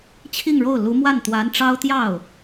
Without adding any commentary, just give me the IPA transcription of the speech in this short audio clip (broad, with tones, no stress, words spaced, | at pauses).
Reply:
t͡ɕʰi˥˧ŋɻo˥˩ʊ̯ lu˧˥mwa˥˩n t̪wa˧˥nʈ͡ʂɑ˥ʊ̯t̪jɑ˥˩ʊ̯